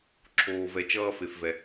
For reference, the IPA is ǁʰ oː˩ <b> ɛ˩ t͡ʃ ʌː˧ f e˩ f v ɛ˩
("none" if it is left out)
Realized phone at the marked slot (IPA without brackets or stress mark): v